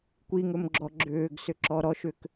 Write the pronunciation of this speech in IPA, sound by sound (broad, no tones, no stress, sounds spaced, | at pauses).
kʷ i ŋ ɵ m ɡ͡ǁ ɔ ɡ͡ǁ ʏː ɡ s ʏ ǁ ɔ ɾ ɔ ʃ ʏ k